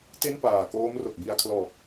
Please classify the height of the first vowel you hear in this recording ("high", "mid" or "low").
mid